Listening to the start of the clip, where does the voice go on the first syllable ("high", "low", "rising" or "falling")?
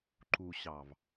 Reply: low